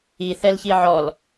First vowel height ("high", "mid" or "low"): high